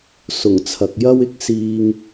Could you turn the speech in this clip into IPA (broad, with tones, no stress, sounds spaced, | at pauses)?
s ʊ˨˩ ŋ t͡sʰ ɐ˨ k̚ j ɐ˥ w ɪ˥ k̚ s iː˧ ŋ